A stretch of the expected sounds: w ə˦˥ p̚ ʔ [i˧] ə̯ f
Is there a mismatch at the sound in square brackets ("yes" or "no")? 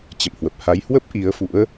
yes